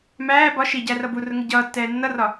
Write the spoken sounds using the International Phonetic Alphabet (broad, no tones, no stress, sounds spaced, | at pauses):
m æː b ɒ ʃ i ɟ æ r ʌ b u r ʊ ŋ ɪ ɟ ʌː tː ɛː nː ʌ r ɒ